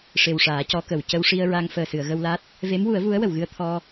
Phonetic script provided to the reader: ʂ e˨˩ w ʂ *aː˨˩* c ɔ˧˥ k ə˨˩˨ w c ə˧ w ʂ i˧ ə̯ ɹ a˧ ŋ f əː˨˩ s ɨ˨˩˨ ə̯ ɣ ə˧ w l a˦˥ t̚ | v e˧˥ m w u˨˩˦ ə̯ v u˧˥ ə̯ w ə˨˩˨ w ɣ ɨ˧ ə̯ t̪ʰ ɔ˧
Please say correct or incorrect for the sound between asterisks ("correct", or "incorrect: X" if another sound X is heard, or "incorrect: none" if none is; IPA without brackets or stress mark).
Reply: incorrect: aː˨˩˦